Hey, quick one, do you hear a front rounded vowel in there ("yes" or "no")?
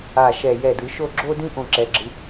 no